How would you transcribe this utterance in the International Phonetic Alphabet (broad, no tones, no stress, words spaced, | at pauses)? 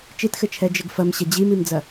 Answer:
t͡ʃitxɘt͡ʃʰɛ d͡ʒɘɡfɐm ɕɐd͡ʑimimd͡zɐ